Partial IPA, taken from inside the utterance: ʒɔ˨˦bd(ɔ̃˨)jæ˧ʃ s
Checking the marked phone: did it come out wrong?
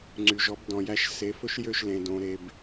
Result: no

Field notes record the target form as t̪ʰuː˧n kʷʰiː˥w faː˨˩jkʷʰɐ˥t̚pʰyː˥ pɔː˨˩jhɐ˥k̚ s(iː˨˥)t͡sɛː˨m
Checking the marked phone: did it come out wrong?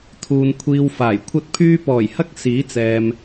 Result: no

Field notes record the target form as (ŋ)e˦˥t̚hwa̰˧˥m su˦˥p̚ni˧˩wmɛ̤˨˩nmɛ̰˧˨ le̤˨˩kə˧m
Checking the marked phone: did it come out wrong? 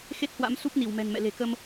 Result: yes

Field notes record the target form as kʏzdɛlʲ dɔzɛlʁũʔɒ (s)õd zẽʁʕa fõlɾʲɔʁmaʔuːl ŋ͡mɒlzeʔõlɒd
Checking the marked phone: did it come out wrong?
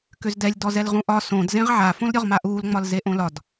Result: no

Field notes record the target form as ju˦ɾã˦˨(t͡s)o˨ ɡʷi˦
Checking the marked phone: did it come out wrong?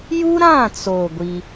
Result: no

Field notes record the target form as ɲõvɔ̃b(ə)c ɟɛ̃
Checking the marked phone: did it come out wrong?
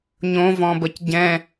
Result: no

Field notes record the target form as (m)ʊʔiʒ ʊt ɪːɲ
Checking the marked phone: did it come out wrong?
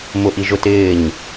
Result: no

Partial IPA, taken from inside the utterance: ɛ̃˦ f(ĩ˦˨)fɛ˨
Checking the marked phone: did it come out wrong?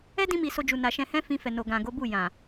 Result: yes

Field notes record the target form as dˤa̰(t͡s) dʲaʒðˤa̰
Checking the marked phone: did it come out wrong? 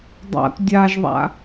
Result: yes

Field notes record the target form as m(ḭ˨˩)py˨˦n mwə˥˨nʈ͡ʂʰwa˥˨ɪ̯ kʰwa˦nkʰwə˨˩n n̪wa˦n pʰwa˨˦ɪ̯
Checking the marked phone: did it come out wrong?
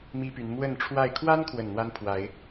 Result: yes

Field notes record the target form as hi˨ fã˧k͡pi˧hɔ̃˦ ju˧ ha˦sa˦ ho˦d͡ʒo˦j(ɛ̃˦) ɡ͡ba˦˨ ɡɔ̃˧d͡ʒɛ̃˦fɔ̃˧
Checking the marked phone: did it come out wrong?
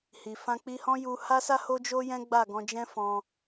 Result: no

